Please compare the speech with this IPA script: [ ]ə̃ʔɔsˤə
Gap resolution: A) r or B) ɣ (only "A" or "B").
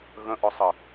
B